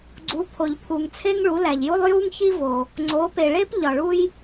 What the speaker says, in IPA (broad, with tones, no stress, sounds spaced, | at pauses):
ɡ͡ǀ u˩˥ pʰ o˩ ʎ pʰ u˩ ŋ t͡sʰ e˥ ŋ ɭ u˩˥ l æ˩ ʎ j u˥ lˠ j u˥ ŋ ç i˥ v o˩ | ŋ͡ǀ o˩˥ p e˩ ɭ e˥ p ʎ ɒ˩ ɭ u˥ j